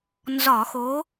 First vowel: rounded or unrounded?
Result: rounded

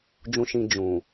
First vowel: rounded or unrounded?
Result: rounded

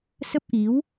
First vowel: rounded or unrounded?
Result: unrounded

